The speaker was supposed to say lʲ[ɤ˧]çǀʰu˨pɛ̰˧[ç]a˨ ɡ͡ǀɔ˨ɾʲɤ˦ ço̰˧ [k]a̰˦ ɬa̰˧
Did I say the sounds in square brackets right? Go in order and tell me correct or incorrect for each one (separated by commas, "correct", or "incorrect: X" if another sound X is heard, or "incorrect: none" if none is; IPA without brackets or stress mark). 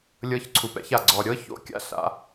correct, correct, incorrect: kʲ